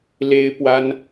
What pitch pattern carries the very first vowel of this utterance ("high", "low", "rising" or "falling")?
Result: high